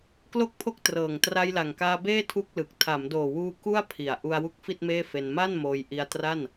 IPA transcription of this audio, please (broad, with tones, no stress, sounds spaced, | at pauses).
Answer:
k l o˥˩ k̚ pʰ o˥˩ k̚ t r ɤː˨˩ ŋ t r a˧ j l a˨˩ ŋ k aː˧ b eː˥˩ tʰ u˥˩ k̚ l ɯ˨˩ k̚ tʰ a˩˦ m d oː˨˩ w uː˧ k u˥˩ a̯ pʰ i˨˩ a̯ ʔ u˧ a̯ w u˦˥ k̚ f i˥˩ t̚ m eː˥˩ f e˧ n m a˥˩ n m oː˧ j ʔ i˧ a̯ t r a˥˩ n